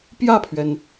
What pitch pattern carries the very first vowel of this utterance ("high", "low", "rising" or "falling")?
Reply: falling